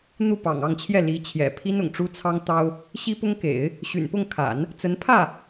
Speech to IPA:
n̪ u˥˩ p ɑ̰˨˩ ŋ ɑ˥˧ ŋ t͡ɕʰ j ɛ˥˩ l i˧˥ t͡ɕʰ j ɛ̰˨˩ pʰ i˥ n ʊ̰˨˩ ŋ ʈ͡ʂ u˥ t͡sʰ ɑ˥ ŋ t̪ ɑ˥ ʊ̯ | ɕ i˥ p ʊ˥ ŋ k ḛ˨˩˦ ɪ̯ | ɕ y̰˨˩ n p ʊ˥˩ ŋ kʰ a̰˨˩˦ n | t͡s ə˧˥ n pʰ ä˥˩

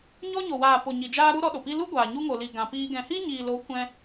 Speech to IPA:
ɲ ɔ˧ ɲ o˨ w aː˨ p o˨ ɲ i˨ d͡ʒ aː˧ ɾ u˦ ɾ ɔ˧ ɗ o˨ p i˦ l u˦ ɡʷ aː˨ ɲ u˧ ŋ o˨ l i˨ ɡ ã˨ p iː˧ ɡ ɛ̃˨ h i˦ ɲ iː˨ l o˨˦ kʷ ɛ̃˧

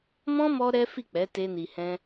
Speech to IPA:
m ɔ̃˦ m ɔ˦ ɾ ɛ˦ f i˦˨ k͡p ɛ˨˦ t e˦ n i˧ h ɛ̃˦

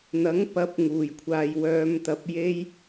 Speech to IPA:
n̪ ɐ˨˥ ŋ p ɐ˨˥ p̚ ŋ uː˨˩ j kʷʰ aː˨ j w œː˨˧ m t̪ ɐ˧ p̚ j e˥ j

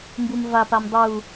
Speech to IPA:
m b u m v a p a m dˤ u

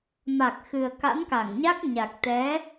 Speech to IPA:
m a˨˩ k̚ x ɨ˨˩ ə̯ k a̰˧˥ n k a˧˩ ŋ ɲ a˦˥ k̚ ɲ a˨˩ k̚ t̪ ɛ˨˦

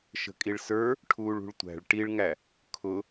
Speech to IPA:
ʃ ə̤ kʼ i ɭ s ə˞ | ʈʰ uː ɭ ṳ ɭ tʷ æ̤ ɭ ʈ i ɭ ŋ æ | kʰ ʊ

